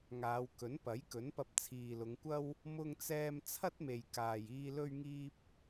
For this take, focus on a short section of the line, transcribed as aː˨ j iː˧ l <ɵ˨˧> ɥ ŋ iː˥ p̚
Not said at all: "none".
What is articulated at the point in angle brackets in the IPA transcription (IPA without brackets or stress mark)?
ɵ˥